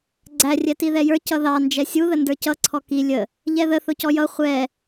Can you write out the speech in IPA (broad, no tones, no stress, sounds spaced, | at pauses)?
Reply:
ɡ͡ǀ æ rʲ ɛ t i ð ɛ j ə˞ c ʌ ð ɑ n d͡ʒ ɛ sʲ u ð ə n d ə˞ c ʌ ǀʰ ɔ k i lʲ ə | ʎ ɛ ð ə θ ʊ c ɔ j ʌ χʷ ɛ